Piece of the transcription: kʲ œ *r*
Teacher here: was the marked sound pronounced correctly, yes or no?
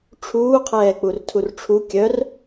yes